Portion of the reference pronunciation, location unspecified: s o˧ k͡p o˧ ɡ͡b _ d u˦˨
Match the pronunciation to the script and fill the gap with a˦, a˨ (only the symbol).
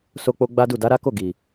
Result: a˦